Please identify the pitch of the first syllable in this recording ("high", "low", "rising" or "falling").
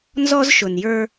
high